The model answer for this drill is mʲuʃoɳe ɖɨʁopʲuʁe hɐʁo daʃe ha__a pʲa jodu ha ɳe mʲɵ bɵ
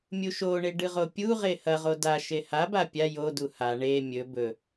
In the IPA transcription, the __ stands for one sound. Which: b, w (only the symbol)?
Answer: b